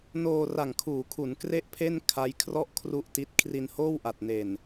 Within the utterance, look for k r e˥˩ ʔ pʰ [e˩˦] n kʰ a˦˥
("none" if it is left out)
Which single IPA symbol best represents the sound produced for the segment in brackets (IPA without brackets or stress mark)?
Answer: e˥˩